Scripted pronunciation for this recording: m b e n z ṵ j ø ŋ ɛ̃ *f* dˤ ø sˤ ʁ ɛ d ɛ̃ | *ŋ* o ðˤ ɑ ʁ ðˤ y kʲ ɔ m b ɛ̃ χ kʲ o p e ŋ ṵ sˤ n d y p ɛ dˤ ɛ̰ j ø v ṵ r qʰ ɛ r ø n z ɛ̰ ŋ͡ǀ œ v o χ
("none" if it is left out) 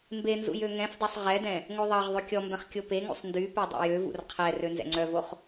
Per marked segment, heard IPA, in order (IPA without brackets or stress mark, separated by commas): f, ŋ